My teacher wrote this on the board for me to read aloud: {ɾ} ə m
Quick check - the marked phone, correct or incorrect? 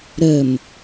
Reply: correct